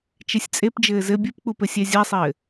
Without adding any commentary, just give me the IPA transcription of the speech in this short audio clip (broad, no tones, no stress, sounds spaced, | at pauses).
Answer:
t͡ʃ e sʲ t͡sʼ e p d͡ʒ ɘː z ɘ bʲ ɨ p k͡p u p ɘ sʲ ɛ zʲ a sˤ ɘː